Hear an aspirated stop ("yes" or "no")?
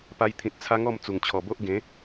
yes